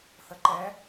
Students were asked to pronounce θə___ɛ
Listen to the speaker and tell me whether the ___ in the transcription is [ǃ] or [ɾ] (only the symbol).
ǃ